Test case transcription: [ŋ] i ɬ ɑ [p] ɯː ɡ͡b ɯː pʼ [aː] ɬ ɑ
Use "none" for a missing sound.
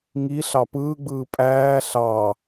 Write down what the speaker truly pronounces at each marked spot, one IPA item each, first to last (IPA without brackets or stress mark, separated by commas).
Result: ŋ, p, æː